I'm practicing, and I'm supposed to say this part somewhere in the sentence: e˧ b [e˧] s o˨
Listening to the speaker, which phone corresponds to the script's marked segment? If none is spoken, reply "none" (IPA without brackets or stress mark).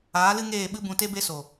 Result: e˧